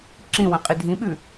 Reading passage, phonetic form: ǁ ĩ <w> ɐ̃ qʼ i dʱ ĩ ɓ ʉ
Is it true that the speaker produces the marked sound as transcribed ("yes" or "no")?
yes